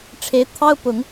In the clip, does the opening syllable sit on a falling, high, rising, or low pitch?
rising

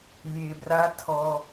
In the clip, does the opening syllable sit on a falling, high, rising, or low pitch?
low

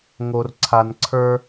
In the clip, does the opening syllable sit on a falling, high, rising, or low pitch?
low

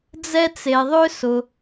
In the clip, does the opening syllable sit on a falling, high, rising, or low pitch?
high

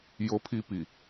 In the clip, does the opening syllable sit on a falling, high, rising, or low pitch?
high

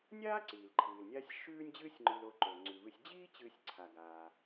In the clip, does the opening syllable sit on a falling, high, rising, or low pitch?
high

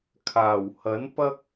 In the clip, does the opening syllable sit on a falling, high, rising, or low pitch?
low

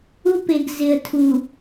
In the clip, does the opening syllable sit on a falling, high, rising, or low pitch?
high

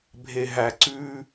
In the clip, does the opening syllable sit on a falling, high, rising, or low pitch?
low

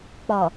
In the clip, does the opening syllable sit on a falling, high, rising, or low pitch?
low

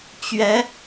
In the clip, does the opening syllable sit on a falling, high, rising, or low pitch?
rising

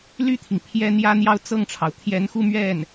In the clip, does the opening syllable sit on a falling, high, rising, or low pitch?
falling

